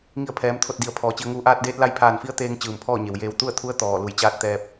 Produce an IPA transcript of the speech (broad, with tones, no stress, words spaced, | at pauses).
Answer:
ŋi˧˩ə̯pʰɛː˩˧mt̪ʰo˧˩t̚di˩ə̯ pʰɔː˩t͡ɕi˩˧ə̯ ŋuː˧˩ʔaː˧t̚deː˧˥t̚la˧˥j pʰaː˧˩nfi˧˥ə̯t̪eː˧ŋ t͡ɕɯː˧˩mpʰɔː˥˨ɲe˩w jeː˧˩wt̪u˥˨ə̯t̪ʰu˧˥ə̯ t̪ɔː˧˩ lu˧˩jt͡ɕaː˥˨t̚t̪ɛː˧p̚